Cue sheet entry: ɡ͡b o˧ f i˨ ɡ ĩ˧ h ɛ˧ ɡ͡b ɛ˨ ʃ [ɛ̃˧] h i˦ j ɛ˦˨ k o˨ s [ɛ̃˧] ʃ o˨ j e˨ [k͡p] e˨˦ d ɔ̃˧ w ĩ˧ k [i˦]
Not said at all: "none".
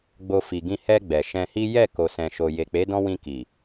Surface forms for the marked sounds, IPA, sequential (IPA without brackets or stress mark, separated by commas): ɛ̃˧, ɛ̃˨, k͡p, i˨